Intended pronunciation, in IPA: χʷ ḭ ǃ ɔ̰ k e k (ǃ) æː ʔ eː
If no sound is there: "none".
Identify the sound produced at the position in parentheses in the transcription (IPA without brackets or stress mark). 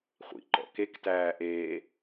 t